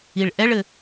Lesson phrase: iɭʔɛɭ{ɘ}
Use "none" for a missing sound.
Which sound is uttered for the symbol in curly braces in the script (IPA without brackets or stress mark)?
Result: ɘ